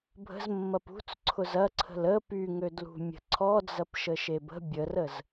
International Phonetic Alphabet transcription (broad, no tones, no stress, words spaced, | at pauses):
bʱə̤zmːɐp ṳt͡sǀʰʊz ɐǀʰə̤l ə pyŋødlṳ mʲə̤ǀʰɔd͡zɐp ʃəʃebə̤ bʲərəz